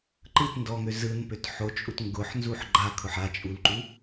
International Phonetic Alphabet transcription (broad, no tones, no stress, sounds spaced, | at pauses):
ǃ ɯ t n d ɔ ŋ ø z ɯ n p ø t ħ o t͡ʃʼ u t ŋ ɡ ʊ ħ n z u ħ ɡ͡ǃ a kʰ ʊ ħ a t͡ʃʼ u l ǃ u